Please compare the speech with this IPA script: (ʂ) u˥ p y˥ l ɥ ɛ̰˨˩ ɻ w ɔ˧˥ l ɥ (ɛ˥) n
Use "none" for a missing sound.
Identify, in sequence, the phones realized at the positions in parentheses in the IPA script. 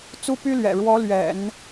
t͡s, ɛ̰˨˩˦

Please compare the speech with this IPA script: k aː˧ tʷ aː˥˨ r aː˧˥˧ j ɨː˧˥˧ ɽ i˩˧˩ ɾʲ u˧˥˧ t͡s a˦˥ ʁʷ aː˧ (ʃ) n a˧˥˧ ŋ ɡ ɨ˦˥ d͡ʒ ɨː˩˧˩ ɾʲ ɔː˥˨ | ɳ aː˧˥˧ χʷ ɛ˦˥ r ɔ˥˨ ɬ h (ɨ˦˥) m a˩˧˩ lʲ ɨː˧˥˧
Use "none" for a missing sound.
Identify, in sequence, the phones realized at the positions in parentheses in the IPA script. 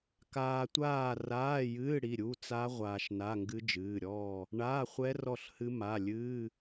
ʃ, ɨ˦˥

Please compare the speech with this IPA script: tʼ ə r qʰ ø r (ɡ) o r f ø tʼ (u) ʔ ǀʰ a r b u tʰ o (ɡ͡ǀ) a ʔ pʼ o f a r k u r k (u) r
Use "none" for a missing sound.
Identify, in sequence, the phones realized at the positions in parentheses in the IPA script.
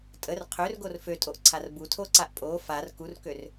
ɡ, o, ǀ, ø

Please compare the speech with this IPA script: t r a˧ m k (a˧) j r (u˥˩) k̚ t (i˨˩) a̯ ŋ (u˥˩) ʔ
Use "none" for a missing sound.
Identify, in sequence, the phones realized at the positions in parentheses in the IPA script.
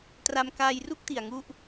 aː˧, u˥˩, i˨˩, u˥˩

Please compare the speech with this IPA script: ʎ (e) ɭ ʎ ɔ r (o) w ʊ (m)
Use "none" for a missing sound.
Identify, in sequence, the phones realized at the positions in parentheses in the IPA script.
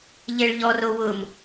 e, o, m

